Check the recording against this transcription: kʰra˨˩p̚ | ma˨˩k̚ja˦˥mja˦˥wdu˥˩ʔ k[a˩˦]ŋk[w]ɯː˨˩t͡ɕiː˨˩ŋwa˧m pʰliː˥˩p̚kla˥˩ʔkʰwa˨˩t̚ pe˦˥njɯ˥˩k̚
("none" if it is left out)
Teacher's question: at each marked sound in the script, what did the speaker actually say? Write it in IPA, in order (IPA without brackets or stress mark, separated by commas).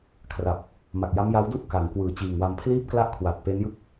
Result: a˩˦, w